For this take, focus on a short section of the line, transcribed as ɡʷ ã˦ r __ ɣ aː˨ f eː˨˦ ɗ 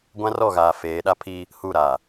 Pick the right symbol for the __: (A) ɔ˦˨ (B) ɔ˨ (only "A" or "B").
A